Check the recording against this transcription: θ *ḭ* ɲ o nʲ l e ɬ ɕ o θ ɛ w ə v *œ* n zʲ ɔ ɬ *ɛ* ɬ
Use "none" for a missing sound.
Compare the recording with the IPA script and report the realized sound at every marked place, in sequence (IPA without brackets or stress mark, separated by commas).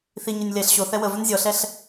i, œ, ɛ